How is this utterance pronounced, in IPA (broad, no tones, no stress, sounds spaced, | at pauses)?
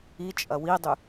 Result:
i t͡ʃʼ ɐ w i dˤ y